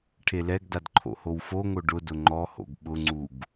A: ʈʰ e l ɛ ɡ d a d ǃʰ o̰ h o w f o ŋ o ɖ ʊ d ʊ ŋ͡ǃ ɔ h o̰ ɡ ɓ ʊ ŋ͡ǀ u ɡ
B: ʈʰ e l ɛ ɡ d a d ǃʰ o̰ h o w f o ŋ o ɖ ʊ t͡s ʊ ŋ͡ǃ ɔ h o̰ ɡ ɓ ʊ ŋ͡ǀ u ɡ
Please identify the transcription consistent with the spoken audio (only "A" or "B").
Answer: A